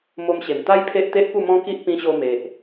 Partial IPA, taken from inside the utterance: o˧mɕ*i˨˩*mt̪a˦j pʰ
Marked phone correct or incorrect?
incorrect: e˨˩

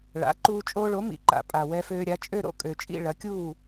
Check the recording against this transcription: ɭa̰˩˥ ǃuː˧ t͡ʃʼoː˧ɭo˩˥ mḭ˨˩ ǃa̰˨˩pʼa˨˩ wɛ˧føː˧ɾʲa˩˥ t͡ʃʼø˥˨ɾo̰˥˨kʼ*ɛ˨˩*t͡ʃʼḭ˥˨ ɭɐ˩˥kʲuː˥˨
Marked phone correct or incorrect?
incorrect: ø˨˩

